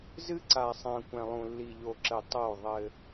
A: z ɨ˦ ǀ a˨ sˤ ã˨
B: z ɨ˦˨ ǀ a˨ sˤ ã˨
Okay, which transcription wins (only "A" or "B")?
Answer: A